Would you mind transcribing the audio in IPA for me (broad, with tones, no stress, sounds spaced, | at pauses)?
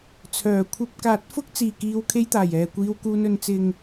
t͡sʰ œː˨˩ kʷʰ ɐ˧ p̚ k aː˨˥ t̚ f ʊ˥ k̚ t͡s iː˨˩ k iː˨ w kʰ e˥ j t̪ aː˨˩ j ɛː˨ kʷ iː˧ w k uː˧ n ɵ˨ n t͡s ɪ˨ ŋ